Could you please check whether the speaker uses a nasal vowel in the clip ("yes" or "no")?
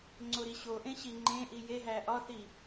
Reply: yes